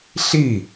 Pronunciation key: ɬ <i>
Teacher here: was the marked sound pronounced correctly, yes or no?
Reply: yes